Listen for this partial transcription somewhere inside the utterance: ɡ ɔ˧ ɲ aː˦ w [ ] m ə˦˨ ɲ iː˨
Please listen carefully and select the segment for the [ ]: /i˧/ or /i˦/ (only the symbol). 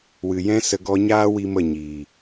i˦